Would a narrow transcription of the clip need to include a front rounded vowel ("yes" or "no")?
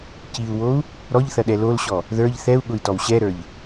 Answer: no